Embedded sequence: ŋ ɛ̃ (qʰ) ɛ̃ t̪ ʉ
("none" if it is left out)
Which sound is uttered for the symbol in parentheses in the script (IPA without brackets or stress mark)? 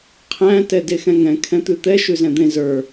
kʰ